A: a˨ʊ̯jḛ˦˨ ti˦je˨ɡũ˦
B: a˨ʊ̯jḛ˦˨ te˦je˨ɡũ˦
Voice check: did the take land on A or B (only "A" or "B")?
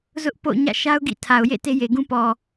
B